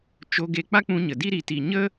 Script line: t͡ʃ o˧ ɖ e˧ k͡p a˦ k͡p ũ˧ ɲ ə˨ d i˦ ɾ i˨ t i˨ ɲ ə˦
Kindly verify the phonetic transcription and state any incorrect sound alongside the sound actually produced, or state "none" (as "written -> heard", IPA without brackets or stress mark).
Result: ɖ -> ɡ